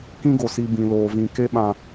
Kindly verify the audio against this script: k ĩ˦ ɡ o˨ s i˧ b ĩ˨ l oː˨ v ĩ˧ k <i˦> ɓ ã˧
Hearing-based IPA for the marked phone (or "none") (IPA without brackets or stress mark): e˦